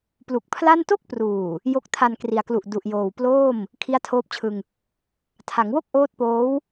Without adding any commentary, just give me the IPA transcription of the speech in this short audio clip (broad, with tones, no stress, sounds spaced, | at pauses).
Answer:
p l u˨˩ k̚ pʰ l a˥˩ n t o˥˩ k̚ p r uː˨˩ | j o˦˥ k̚ tʰ a˧ n k r i˩˦ a̯ k l u˨˩ ʔ d u˨˩ ʔ j oː˨˩ w p l oː˥˩ m | kʰ i˦˥ a̯ tʰ oː˦˥ p̚ t͡ɕʰ ɯ˧ ŋ | tʰ a˩˦ ŋ w o˥˩ k̚ ʔ oː˦˥ t̚ p oː˦˥ w